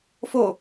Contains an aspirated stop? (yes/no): no